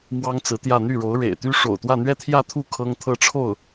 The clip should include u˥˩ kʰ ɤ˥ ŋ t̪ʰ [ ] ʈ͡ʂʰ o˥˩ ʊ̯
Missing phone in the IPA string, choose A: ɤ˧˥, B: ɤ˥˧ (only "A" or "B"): B